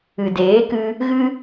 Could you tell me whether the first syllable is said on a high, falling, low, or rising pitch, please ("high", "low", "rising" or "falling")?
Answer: low